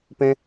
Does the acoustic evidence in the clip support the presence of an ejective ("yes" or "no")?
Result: no